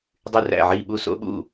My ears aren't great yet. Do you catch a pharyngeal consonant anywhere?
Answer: yes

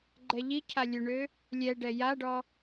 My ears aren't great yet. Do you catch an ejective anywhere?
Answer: no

